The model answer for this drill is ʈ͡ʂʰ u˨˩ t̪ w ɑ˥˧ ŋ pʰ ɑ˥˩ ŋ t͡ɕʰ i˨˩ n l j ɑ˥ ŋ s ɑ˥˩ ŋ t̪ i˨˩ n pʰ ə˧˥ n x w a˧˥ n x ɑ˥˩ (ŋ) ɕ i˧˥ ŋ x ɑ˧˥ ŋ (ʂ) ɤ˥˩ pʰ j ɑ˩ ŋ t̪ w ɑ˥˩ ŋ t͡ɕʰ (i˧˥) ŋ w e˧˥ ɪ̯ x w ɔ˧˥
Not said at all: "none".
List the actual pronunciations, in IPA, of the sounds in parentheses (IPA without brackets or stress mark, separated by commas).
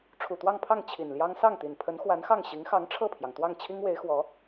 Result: ŋ, ʈ͡ʂʰ, i˥